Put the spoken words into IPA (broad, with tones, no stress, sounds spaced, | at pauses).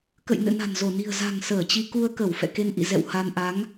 k ə̰˧˨ j n ɨ̰˧˨ n a̤˨˩ n z o˧˩ n i̤˨˩ ə̯ z a̤˨˩ ŋ s əː˧˩ t͡ɕ i˧ k u˧ ə̯ k ə˧˩ w f ɛ̰˧˨ k e˧ n ʔ ḭ˧˨ z ɛ̰˧˨ w h a˧ n ʔ a˨˦ ŋ